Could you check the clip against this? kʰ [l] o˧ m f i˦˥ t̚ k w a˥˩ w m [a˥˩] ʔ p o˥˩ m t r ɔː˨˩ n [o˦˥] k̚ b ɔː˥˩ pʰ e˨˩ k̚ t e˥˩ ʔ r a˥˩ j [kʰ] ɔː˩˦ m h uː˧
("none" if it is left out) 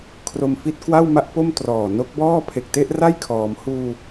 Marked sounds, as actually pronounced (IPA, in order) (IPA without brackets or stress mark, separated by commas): r, a˥˩, o˦˥, kʰ